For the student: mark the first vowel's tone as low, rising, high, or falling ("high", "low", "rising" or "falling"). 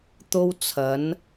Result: high